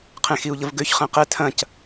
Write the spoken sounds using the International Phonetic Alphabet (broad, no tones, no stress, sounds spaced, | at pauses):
qʰ ẽ x i u̯ ʎ ə v ɡ ø ç χ ɛ̃ q ɛ tʰ ɐ̃ c